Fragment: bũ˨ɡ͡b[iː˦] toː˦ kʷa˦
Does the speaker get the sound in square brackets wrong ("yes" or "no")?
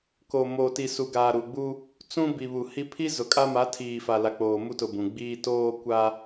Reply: no